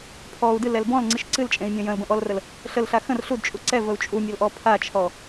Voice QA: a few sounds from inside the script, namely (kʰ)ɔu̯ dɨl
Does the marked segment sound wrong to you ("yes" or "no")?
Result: yes